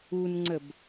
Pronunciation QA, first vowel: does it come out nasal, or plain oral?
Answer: oral